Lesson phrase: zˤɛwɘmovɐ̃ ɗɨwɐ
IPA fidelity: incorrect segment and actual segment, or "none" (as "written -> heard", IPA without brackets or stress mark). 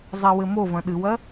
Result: none